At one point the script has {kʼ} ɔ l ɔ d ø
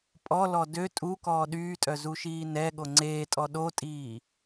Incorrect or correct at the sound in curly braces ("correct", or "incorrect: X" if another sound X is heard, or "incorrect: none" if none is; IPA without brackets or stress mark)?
incorrect: pʼ